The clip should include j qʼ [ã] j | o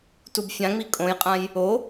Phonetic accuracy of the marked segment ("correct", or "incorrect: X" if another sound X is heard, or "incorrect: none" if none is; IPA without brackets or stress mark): correct